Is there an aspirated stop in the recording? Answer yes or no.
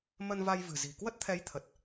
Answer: yes